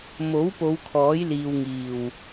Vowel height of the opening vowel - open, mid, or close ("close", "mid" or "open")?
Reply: mid